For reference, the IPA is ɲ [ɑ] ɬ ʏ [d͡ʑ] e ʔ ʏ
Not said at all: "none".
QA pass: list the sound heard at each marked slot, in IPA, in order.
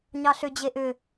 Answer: ɑ, d͡ʑ

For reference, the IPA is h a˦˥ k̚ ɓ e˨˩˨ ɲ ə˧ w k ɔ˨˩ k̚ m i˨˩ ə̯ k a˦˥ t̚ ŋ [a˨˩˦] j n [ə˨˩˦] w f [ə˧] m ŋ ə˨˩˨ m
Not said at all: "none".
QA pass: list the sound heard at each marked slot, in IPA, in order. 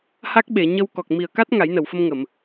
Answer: a˨˩˦, ə˨˩˨, ə˧

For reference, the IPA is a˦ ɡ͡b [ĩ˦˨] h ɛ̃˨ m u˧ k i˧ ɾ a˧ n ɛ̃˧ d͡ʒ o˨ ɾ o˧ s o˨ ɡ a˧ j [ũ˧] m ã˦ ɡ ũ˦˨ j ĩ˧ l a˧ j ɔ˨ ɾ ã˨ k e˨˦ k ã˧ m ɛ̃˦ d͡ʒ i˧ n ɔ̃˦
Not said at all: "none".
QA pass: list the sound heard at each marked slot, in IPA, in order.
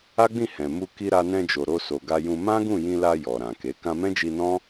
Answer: ĩ˦˨, ũ˧

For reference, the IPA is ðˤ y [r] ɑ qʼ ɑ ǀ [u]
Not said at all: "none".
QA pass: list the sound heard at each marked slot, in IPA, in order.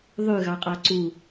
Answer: ɣ, u

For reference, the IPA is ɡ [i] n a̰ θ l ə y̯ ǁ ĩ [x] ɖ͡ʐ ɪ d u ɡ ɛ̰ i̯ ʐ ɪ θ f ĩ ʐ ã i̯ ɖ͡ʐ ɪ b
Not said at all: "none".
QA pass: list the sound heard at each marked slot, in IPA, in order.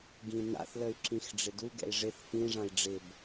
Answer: ĩ, x

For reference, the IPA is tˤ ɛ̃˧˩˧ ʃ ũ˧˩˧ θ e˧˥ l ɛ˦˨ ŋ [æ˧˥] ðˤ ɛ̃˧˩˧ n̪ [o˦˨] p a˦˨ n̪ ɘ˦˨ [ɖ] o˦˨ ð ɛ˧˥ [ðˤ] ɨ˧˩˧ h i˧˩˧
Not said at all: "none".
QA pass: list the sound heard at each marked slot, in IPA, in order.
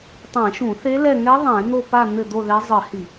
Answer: ɛ˧˥, o˦˨, d̪, zˤ

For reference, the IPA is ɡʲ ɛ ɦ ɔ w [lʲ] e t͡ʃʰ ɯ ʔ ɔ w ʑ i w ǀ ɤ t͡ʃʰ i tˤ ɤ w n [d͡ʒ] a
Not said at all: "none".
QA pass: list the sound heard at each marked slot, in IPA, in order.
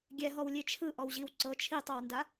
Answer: lʲ, d

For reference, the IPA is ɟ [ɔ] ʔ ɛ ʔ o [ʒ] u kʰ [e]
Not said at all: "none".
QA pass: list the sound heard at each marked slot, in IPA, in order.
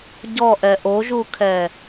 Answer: ɔ, ʒ, ɛ

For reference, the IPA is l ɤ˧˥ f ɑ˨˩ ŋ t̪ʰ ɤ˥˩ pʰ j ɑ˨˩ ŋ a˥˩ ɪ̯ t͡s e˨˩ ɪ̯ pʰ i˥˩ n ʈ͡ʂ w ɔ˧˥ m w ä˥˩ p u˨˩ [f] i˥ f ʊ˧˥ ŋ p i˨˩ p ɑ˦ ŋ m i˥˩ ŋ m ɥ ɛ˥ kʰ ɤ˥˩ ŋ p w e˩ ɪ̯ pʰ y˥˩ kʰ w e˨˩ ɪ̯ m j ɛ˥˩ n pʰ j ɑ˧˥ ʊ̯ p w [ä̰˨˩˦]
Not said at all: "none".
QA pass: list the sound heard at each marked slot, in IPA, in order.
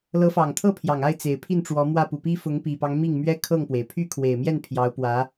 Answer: p, ä˧˥

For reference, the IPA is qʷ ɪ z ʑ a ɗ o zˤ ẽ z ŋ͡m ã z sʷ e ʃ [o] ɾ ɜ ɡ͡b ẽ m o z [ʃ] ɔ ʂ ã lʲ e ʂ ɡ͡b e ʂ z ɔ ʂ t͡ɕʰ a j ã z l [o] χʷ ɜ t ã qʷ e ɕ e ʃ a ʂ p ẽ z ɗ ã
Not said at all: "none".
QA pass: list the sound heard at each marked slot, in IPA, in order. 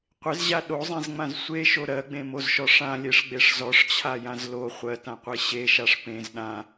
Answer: o, ʃ, o

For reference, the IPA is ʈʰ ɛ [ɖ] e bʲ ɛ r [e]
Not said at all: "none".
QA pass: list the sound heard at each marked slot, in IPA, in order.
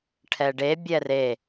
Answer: ɖ, e

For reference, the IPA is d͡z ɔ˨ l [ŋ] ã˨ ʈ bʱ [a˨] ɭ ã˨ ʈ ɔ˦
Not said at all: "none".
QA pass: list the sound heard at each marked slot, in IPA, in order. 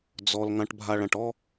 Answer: ŋ, a˨

